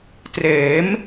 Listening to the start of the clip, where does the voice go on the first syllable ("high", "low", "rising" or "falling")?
rising